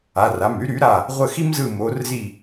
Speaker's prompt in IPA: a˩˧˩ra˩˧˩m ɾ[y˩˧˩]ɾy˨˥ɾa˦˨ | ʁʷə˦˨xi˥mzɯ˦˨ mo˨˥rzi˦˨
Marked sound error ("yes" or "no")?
yes